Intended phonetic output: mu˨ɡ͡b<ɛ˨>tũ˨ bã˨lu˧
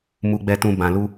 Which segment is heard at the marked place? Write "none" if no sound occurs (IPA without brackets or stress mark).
ɛ˨